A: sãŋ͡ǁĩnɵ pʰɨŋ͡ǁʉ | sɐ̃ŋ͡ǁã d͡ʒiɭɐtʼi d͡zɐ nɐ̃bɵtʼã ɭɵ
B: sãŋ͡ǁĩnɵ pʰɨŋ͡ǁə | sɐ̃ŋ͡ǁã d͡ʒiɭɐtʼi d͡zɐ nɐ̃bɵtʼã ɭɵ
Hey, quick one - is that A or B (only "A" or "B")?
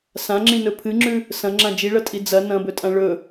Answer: A